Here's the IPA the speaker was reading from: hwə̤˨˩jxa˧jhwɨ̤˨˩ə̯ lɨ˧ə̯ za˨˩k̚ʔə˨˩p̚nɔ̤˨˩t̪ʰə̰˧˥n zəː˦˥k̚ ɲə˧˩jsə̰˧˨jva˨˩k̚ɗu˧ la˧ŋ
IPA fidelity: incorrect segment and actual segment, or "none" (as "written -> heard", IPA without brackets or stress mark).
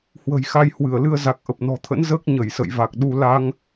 ɨ̤˨˩ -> ɨ˧˩